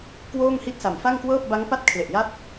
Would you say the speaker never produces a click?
yes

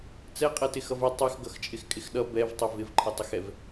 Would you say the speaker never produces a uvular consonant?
no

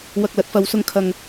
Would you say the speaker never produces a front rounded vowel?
yes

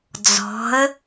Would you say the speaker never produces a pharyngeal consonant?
yes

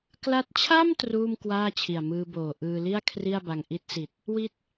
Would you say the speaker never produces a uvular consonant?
yes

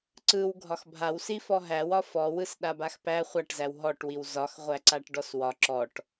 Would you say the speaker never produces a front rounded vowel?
yes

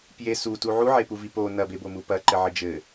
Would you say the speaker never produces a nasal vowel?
yes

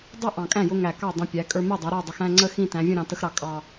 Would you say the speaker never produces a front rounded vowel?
yes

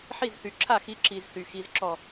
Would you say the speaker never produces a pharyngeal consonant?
no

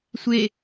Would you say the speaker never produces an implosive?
yes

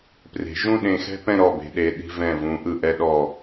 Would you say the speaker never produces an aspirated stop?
yes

